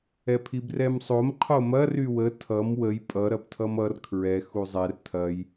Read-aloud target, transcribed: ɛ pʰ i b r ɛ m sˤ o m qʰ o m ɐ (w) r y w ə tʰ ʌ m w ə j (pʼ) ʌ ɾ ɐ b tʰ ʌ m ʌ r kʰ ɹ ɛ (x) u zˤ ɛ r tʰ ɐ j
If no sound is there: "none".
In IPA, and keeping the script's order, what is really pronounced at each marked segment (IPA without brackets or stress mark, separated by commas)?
none, pʼ, x